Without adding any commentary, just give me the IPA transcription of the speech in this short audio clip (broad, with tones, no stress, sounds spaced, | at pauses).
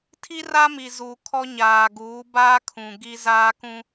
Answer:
tʰ i˦ r a˦ m i˨ z uː˨ kʰ ɔ˦ ɲ aː˨ ɡ uː˨˦ b aː˦ kʰ ũ˨ ɡ i˦ z aː˦ k ũ˦